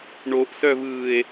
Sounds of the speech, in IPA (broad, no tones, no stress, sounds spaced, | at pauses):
ɳ o ʔ s œ v ɯː e̯